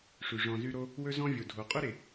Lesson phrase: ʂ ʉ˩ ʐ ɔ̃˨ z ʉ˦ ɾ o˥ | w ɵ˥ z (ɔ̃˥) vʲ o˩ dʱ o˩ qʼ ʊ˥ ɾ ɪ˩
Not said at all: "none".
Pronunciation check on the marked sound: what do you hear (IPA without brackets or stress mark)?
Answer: ɔ̃˥